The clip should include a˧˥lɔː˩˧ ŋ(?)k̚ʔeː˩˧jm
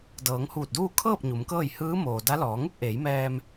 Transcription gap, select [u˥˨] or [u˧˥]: u˥˨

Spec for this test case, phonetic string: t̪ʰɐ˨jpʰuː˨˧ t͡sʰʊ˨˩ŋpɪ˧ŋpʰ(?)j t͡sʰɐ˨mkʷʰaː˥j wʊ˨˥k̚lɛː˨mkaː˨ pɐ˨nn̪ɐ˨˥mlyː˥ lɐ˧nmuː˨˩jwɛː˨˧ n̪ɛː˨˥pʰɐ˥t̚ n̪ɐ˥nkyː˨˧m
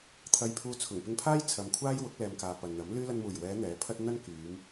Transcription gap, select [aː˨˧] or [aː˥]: aː˥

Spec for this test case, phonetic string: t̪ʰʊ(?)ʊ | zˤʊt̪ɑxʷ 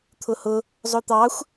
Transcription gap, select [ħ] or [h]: h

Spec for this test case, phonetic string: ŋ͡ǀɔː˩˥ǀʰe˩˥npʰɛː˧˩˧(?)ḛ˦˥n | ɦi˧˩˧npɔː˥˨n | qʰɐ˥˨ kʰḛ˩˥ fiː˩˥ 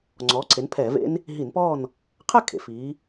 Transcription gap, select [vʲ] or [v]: v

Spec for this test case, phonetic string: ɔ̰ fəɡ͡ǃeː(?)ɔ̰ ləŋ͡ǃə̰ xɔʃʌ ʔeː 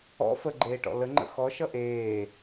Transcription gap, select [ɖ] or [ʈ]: ʈ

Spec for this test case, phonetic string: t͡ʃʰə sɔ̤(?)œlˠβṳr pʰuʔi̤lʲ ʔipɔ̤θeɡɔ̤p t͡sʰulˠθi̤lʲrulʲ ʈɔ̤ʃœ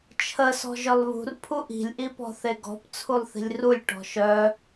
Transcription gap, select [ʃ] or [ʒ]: ʒ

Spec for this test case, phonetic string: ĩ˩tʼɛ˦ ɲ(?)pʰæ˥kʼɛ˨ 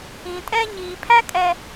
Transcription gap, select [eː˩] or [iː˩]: iː˩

